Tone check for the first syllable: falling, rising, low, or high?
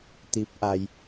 rising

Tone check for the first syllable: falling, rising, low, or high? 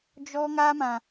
high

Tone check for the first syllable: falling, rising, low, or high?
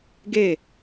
falling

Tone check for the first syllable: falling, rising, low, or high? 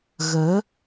rising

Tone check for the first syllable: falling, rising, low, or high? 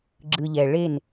low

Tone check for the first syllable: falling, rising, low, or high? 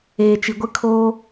low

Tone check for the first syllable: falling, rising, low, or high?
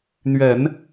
low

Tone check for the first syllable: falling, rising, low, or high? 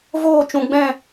falling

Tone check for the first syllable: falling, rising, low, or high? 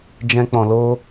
high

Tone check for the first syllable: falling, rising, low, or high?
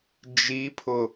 rising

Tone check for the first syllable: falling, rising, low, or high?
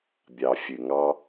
low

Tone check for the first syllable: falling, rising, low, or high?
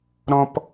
high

